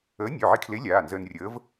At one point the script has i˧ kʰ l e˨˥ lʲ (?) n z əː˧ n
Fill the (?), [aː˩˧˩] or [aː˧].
aː˩˧˩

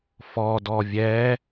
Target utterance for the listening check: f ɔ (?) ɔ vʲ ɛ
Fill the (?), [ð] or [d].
d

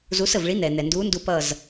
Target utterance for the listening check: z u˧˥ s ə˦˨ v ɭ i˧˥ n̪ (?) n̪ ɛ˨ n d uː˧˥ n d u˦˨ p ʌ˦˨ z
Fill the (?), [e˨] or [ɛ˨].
ɛ˨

